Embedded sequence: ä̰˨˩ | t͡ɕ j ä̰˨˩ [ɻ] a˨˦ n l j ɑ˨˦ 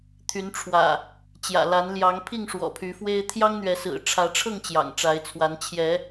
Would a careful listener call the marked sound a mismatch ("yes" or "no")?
yes